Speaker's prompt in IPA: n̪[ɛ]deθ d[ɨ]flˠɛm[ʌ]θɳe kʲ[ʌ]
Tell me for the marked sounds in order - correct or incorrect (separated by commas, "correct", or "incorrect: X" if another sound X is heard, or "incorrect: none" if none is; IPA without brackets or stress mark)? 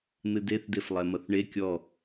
incorrect: ɨ, incorrect: e, correct, incorrect: ɔ